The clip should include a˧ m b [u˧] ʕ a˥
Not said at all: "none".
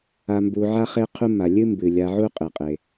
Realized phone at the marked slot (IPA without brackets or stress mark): u˧